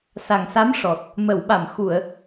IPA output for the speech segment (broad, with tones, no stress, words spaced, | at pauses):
sa˨˩ŋsa˧˥mʂɔ˨˩t̚ | mə˨˩˨wɓa˨˩˨m xu˨˩˨ə̯